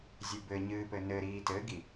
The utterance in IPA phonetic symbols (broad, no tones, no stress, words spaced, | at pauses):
zʲɨbɘɲɨːpɘ nɘɾiː tɘɡi